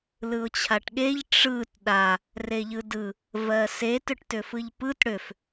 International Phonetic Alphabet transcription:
l ɯ ʊ̯ t͡ɕʰ a ʈ ɠ e ʎ ʈ͡ʂ ɯ t ɗ a | r e ʎ ɯ d ɯ | v ɜ s e t ʏ ʈ t ʏ f ɯ ʎ p ɯ t ɽ ʏ f

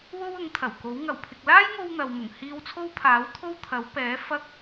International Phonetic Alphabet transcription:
w o˥ w ʊ˨˥ ŋ t̪ʰ ɐ˨˩ w k o˨˥ w ŋ ɐ˨˩ w pʰ ɪ˨ k̚ l aː˥ j ŋ o˧ w n̪ ɐ˨ w m ʊ˨˩ ŋ h iː˧ w t͡sʰ o˥ w pʰ aː˨˥ w t̪ʰ o˥ w t̪ʰ ɐ˨˥ w p ɛː˨˥ f ɐ˥ k̚

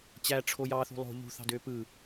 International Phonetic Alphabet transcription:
t͡ɕ æ ʈ͡ʂʰ o j ɑ θ ṳ lˠ o̤ ʎ ṳ θ ɑ̤ d øː p ɯ

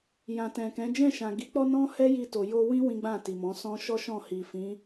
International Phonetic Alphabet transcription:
j ã˨ t ɛ̃˨ k ɛ̃˨˦ d͡ʒ ɛ̃˦˨ ʃ ã˨ ɡ i˨˦ k͡p ɔ˦ n ɔ̃˦ h ɛ˦ j i˧ t o˨ j o˧ w ĩ˦ w ĩ˦ ɡ͡b ã˦˨ t i˨ m ɔ̃˨˦ s ɔ̃˧ ʃ ɔ˦ ʃ ɔ̃˦˨ h i˨ f ĩ˨˦

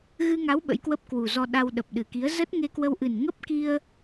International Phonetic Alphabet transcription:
ɣ ɨ˧ ŋ a˨˦ w ɓ ə̰˧˥ j k w ə˦˥ p̚ k w u˨˩ z ɔ˧ ɗ a˧ w ɗ ə˨˩ p̚ ɗ ɨ˨˩ k i˨˦ ə̯ z ə˦˥ t̚ ŋ e˧ k w ə˧ w ʔ ɨ˨˩ n ŋ ə˦˥ p̚ k i˧ ə̯

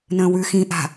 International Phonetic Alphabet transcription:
n ə̃ː w ʉ x ĩ ʔ a̤

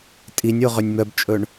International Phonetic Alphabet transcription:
tʼ i nʲ o ʁ ø nʲ m œ b t͡ʃʼ ɵ ɳ

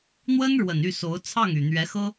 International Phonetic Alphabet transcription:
n̪ w ə˥ n ɻ w ə˨˩ n y˥˩ s o˧˥ ʊ̯ t͡sʰ ɑ˥˩ ŋ y˨˩ n̪ ɥ ɛ˧˥ x ɤ˥

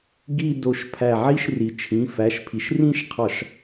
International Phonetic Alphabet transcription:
ɡ i˥˧ d o˧˩ ʃ pʰ æ˧˩ ʕ i˥˧ ʃ r i˩ t͡ʃʰ ĩ˩˧˩ f æ˩˧˩ ʃ pʰ i˩ ʃ r ĩ˥˧ ʃ qʰ ɒ˧˩˧ ʃ

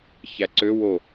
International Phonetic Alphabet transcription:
ç æ ǀ ø w o

